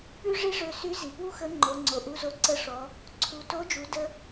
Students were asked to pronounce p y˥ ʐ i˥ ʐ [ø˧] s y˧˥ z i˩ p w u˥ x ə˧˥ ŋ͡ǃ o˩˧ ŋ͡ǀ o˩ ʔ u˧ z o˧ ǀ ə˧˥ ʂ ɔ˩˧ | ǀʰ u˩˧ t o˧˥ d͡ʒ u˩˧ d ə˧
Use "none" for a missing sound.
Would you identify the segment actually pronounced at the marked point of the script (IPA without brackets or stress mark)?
ø˧